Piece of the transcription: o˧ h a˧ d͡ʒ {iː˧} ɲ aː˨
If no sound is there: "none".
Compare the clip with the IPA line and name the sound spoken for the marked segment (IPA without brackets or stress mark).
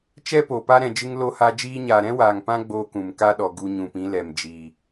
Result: iː˧